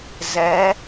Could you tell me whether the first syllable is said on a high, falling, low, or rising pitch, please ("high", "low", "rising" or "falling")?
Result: rising